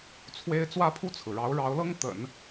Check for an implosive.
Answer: absent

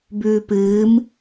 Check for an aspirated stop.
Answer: absent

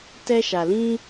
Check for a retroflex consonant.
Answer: absent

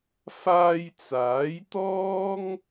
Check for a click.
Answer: absent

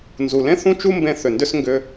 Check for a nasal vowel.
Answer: present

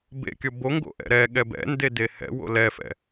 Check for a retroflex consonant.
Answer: absent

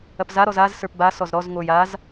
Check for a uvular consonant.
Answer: absent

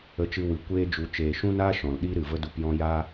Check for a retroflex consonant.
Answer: absent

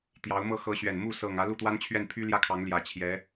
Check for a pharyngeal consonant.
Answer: absent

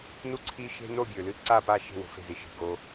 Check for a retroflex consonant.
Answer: absent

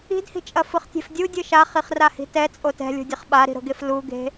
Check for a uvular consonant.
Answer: present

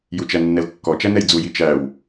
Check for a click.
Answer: absent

